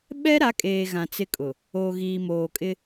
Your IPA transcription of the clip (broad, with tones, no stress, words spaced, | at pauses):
ɓɛ˦ɾa˨˦kʼeː˨ ɣã˨t͡sɪ˦kʼʊ˨ | oː˨ɣiː˨moː˨ kʼɪ˦